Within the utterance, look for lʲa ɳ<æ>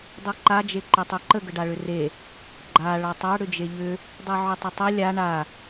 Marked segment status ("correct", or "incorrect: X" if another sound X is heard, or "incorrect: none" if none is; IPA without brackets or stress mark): incorrect: a